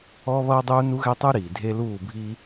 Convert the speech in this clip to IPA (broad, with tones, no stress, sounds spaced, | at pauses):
ɔ˦ β ʌː˦ dˤ uː˦ n u˦ ɣ ɛ˦ tˤ u˦ ɾ iː˨ dʱ e˦ l uː˦˨ bʱ i˦